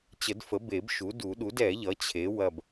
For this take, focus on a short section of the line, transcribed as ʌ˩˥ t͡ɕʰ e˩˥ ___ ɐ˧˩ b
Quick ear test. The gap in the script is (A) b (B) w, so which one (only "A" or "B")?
B